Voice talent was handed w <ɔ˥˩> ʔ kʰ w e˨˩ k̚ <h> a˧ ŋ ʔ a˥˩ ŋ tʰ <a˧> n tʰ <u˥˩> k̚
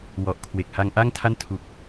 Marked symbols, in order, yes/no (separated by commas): no, yes, no, no